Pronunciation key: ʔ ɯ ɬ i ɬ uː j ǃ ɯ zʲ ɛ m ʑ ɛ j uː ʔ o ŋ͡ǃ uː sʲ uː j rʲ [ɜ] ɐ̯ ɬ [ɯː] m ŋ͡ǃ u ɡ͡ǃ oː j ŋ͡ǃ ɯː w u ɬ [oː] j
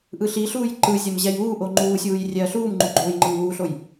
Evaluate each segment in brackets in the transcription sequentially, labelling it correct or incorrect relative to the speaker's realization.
incorrect: ɛ, incorrect: uː, incorrect: o

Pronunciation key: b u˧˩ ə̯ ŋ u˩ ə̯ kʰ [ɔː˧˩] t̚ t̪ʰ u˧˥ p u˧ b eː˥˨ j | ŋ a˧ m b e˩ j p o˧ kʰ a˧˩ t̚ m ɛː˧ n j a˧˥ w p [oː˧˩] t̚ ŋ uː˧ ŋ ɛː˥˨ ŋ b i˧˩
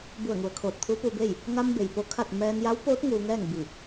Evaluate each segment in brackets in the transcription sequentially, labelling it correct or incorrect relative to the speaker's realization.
incorrect: oː˧˩, incorrect: oː˧˥

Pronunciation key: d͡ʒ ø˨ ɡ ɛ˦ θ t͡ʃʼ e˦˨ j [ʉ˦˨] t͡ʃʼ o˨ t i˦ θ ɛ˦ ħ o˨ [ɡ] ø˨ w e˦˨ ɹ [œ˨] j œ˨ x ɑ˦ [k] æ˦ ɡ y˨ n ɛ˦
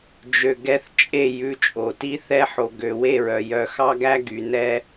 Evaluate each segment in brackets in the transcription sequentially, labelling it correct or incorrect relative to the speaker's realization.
correct, correct, correct, incorrect: ɡ

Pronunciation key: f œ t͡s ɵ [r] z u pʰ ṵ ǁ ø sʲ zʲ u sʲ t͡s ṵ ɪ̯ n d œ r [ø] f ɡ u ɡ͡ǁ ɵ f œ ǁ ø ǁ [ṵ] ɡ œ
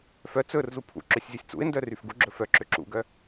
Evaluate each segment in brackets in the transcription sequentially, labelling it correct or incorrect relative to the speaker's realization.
correct, incorrect: y, correct

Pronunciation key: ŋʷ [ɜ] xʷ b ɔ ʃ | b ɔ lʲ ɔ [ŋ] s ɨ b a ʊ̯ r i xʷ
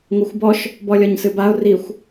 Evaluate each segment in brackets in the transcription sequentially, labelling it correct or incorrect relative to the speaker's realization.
correct, incorrect: ɲ

